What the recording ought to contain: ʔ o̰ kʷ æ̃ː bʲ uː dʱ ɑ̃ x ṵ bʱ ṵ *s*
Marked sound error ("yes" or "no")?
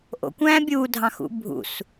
no